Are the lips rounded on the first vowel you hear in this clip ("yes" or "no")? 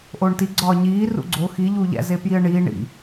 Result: yes